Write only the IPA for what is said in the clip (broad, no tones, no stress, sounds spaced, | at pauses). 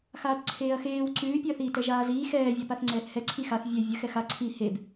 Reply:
x aː t ǀʰ eː ɐ̯ x eː w ǀ ʉː pʲ ʉ ɐ̯ θ iː t ɛ ʒ aː z iː x ɛː vʲ a p a θ ŋ͡ǀ ɛː θ h ɛ ǀʰ i x a θ vʲ ɛ vʲ ə x ɛ x a ǀʰ i h e b